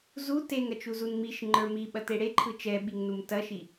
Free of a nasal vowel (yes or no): yes